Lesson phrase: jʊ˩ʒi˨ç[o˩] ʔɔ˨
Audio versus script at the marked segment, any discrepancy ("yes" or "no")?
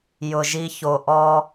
no